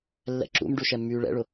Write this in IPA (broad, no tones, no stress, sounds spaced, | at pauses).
lː ɛ̰ ǁ ṵ m ɖ u ʃ ɛ mː yː ɭ ɛ̰ ɭ ʊ